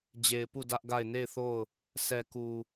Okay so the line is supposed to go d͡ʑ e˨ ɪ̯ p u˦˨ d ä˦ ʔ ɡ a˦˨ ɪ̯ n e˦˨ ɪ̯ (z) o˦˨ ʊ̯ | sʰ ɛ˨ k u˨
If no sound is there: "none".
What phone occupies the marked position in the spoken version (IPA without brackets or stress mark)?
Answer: θ